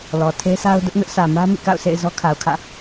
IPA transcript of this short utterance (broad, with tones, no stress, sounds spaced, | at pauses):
l ɔ˨ tʰ e˦ sʰ a˦ ʊ̯ d ʊ˦ ʔ n ʊ˦ ʔ s ä˨ m ä˦ m ḭ˦˨ k a̰˦˨ ʊ̯ s ḛ˦˨ ɪ̯ z ɔ˦ kʰ a˨ ʊ̯ kʰ ä̰˦˨